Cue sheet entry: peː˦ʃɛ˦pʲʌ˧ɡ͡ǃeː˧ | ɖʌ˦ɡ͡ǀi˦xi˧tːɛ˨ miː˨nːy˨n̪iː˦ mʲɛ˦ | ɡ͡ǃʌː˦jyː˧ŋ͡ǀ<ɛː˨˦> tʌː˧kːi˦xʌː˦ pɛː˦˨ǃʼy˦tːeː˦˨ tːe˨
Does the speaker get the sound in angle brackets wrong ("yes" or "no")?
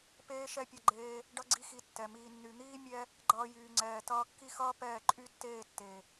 yes